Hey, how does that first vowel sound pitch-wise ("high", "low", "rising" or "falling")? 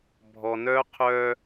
low